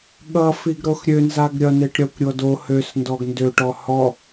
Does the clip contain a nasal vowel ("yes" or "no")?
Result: no